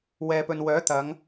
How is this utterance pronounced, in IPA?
w ɛː˨ p ɵ˨ n w œː˨˥ t̪ ɐ˨˧ ŋ

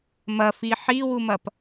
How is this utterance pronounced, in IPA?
m ɐ f i ħ i w u m ɐ p

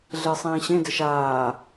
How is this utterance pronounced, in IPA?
ɮ e sˤ ĩː ɕ ẽ d ɘ ʃ aː

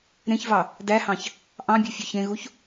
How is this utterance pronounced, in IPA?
ɾ ẽ ç v ɑ | d æ h ɑ̃ ç | ʔ ɑ̃ bʲ u fʲ ɵ ç ẽ ɣ u ç

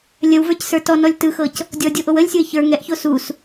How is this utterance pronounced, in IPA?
lʲ ə w v ə˞ c s ə˞ t ɔ n ɔ lʲ t ɯ x ɤ c | dʲ ɔ dʲ o ʔ o w ə lʲ sʲ o ɪ̯ ç ə˞ ŋ ɛ ʔ ç o s u s

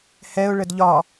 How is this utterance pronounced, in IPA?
h ɛ ʊ̯ ɭ ə d ʎ ɒ

